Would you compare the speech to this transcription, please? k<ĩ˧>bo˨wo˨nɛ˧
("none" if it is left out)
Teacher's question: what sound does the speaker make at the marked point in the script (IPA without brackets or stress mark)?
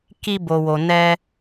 i˧